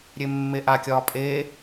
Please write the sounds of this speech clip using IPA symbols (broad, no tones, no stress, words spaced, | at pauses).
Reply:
ɾʲemːeʔakʲɒː pʼe